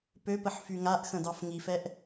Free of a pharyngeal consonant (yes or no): no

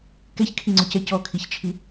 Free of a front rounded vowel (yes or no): yes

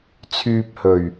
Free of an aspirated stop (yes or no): no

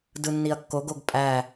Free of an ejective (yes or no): no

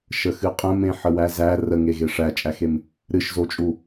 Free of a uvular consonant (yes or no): no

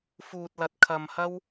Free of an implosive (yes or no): yes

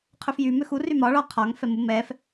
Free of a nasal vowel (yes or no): yes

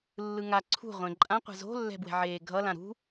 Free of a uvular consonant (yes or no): no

